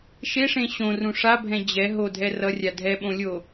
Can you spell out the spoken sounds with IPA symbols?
ʃ e ʂ ẽ ɕ õ r ũ ʂ a bʱ ɛ̃ d͡ʑ ɛ ɦ o dʱ ɛ r ʌ rʲ a dʱ ɛ ɓ õ lʲ o

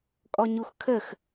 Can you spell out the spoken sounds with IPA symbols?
kʼ ɔ ɲ u x kʰ ə x

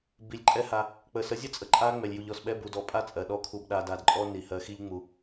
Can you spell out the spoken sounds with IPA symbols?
b i˨ lʲ ǃʼ ɛ˦ h a˧ | k͡p ə˨ s ə˨˦ zʲ ə˦ t͡sʼ ə˧ ǃʼ a˦ ŋ͡m ɛ˨ lʲ j u˨ ʎ ɔ˨ s ɓ ɛ˦ b u˨ d ɔ˧ pʼ a˦ t͡sʼ ɜ˨ ɗ ɔ˦ kʰ u˧ b ɗ a˧ d a˧ d ǃʼ ɔ˦ n i˨ h ɜ˧ x i˦ ʎ ŋ͡m u˧

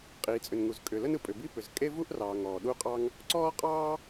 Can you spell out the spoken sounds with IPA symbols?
qʼ iː˩ t͡sʼ ʏ˩ n ŋ u˩ z kʼ ʏ˩ l ə˥ n ɯ˩ pʼ ʏ˩ b i˥ p ʏ˩ z kʼ e˥ v u˥ ʔ r ɑː˩ ŋ ɔː˩ ɗ u˥ qʼ ɑ˥ ŋ | ǀ ɔː˥ qʼ ɑː˥

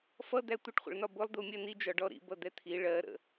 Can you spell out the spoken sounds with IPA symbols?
f ʌ d̪ æ tʷ ɪ ʈ χʷ ə̰ ɭ n ɒ b ʊ lˠ d̪ u mʲ ɜ n i d͡ʒ ɒ ɖ ɔ ɾ ḭ b ʌ d̪ ɛ t̪ʰ i ɭ ɜ ɾ ə̰

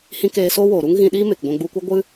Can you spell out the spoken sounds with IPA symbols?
h ĩ˧ k eː˧ s o˦ w oː˨ ɾ u˦ ŋ ɣ ĩ˧ ɗ iː˦ m e˨ k ɡʷ ɛ̃˧ ɡ͡b u˧ kʷ ɨ˦ ɡʷ ɨ˦

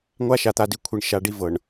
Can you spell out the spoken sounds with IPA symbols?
ŋʷ a˦ ʃ a˨ t̪ a˨ d i˦ kʷʰ i˨ ɳ ʃ a˨ ɖ i˦ v ɤ˨ ɳ

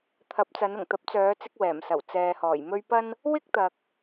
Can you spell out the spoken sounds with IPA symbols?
t̪ʰ ɐ˨˥ p̚ t͡s ɐ˨˧ n ʊ˨˩ ŋ t̪ ɐ˨˥ p̚ t͡s œː˨˧ t͡s ɪ˧ k̚ w ɛː˨˩ m s ɐ˨˩ w t͡s ɛː˨ h ɔː˨˩ j m ɵ˥ ɥ p ɐ˥ n | w ɪ˥ k̚ t̪ ɐ˨ k̚

